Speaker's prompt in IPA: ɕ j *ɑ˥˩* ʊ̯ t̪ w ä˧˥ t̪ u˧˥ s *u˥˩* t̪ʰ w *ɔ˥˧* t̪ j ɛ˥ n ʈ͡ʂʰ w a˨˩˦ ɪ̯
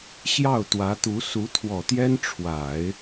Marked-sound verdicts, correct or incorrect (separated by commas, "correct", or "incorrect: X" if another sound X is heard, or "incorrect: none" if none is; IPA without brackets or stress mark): correct, incorrect: u˧˥, incorrect: ɔ˨˩